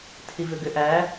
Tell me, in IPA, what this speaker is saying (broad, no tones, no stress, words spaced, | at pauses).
tʰivʏɡʏʔæ